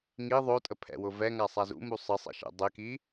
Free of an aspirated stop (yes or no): no